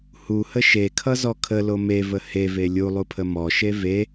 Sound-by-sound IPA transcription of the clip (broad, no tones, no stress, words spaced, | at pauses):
huhə ʃekʰʌzɔ kʰəlo mevə heve lʲulˠupʰə mɔʃe ve